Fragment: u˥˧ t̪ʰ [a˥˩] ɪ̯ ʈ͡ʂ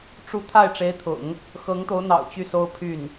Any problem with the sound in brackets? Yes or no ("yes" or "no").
no